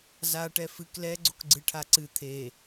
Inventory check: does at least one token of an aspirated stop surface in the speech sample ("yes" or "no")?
yes